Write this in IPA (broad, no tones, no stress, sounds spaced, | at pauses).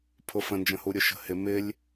pʰ ʊ f ə̃ n d͡ʒ ə̃ h u ɾʲ ʊ ʃ ə̤ h ɪ m ɪ lʲ